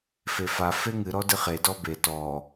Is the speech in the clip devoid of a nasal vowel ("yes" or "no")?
yes